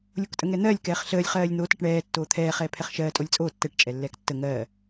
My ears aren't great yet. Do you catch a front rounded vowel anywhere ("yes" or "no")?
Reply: no